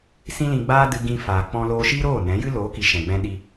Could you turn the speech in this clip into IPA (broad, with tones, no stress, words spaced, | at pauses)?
sĩ˦lĩ˧ɡ͡baː˦ dɨ˧ɡĩ˧faː˨ k͡pɔ̃˧loː˧ʃiː˦ɾoː˦˨ nɛ̃˨˦jɨ˦ loː˨˦ki˨ ʃɛ̃˨ɡ͡bɛ̃˧ɗi˧